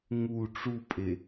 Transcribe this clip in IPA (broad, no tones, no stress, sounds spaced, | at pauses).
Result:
ŋ u ʈ͡ʂ u pʼ e